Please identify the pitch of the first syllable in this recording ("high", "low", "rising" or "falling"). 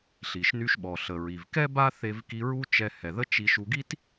low